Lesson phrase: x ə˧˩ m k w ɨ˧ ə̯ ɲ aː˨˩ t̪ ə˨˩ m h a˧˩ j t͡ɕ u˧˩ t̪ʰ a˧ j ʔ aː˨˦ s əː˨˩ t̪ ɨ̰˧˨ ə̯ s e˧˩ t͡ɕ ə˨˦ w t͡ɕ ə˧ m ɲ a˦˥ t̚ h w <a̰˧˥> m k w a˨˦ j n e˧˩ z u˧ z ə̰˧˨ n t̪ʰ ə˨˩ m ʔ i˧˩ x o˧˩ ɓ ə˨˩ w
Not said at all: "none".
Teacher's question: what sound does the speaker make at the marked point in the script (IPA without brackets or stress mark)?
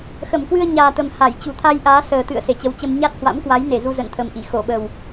a̰˧˥